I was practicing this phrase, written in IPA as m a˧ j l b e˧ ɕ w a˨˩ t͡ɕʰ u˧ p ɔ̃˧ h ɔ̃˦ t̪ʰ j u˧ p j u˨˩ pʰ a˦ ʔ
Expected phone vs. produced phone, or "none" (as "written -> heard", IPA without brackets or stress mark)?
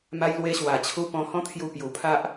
b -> w